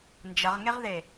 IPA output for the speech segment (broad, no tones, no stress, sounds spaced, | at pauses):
n d͡ʒ ɐ ʁ ŋ e ʁ ð e